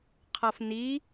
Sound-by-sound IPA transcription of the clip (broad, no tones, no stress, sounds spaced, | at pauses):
qʰ ʌ f n i